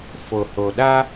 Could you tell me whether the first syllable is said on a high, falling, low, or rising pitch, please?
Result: low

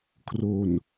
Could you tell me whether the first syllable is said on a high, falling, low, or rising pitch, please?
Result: low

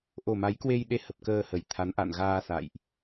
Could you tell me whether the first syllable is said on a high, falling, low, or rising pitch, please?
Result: low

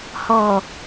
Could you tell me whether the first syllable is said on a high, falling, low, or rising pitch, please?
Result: low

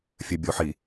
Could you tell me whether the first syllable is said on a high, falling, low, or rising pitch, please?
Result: low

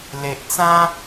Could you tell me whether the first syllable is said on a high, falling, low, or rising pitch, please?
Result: low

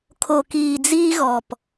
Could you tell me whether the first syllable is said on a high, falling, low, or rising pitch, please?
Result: low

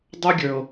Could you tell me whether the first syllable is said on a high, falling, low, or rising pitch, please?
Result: high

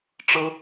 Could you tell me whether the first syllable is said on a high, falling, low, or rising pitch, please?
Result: high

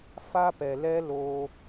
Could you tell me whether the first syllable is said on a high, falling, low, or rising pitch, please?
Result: high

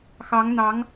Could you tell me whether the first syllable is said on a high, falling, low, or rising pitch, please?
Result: rising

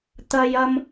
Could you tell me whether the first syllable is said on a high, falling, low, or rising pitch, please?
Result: high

